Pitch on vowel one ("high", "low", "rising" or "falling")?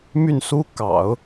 falling